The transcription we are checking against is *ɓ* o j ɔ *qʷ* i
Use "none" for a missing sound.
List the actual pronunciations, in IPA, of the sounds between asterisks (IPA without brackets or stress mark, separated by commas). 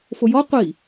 f, qʷ